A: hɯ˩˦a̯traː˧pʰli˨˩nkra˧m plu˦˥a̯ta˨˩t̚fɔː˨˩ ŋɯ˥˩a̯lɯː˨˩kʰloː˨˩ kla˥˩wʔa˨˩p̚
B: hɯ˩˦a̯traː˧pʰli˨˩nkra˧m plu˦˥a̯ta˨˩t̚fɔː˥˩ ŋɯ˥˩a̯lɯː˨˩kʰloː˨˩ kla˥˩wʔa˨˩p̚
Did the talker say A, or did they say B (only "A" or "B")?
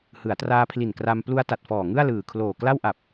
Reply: A